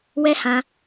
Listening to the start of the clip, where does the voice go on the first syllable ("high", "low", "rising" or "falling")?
high